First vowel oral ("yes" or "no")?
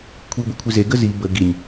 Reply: yes